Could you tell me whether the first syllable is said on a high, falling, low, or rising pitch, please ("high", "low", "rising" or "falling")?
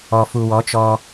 low